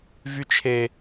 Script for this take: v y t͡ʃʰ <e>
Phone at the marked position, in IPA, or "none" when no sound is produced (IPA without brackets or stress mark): e